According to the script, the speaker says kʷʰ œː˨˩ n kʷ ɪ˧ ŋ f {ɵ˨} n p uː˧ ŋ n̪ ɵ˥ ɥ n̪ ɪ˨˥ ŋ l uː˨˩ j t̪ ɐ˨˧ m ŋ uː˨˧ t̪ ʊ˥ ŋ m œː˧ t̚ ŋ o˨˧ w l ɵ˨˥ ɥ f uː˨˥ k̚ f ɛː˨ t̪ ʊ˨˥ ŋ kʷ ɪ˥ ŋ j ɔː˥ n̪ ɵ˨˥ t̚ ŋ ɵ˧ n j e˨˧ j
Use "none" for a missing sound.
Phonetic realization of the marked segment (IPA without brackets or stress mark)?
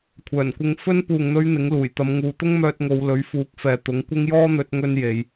ɵ˥